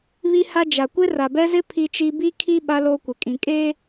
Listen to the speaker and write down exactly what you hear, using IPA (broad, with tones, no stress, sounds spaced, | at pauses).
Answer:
β i˦ h a˦ d͡ʒ a˨ kʷ ɪ˦ r a˨ b ɛ˦ z ɪ˦ pʰ i˦ t͡ʃ i˦ b i˦ kʰ i˦ ɓ a˦ l o˦ kʷ ɪ˨ kʼ ĩ˨ kʼ eː˦